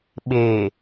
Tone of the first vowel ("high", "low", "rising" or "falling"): low